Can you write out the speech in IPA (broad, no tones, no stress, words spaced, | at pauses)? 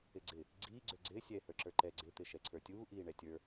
ɪɡ͡ǀɪ | ɡ͡ǀiːɡ͡ǀʏː ɡ͡ǀɪː sʲɛːhə˞ǁə˞ǃɛ ɡ͡ǀɪt̪ɪ ʃɛǀʰə˞tʲuː ʔiːɳɛtʲə˞